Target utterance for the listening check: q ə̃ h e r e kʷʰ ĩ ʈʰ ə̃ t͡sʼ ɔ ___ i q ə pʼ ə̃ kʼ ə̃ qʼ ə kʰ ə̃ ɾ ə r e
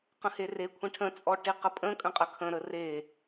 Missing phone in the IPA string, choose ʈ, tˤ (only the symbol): ʈ